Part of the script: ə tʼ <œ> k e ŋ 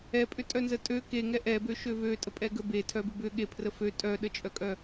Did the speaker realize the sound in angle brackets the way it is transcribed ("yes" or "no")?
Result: no